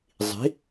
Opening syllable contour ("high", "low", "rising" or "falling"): rising